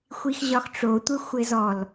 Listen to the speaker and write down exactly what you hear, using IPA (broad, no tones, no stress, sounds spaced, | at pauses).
xʷ i x ʑ ɒ x ʈ͡ʂ o tʷ ɘ xʷ ɘ z ɔ l